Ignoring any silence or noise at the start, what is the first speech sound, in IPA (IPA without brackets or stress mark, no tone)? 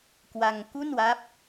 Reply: k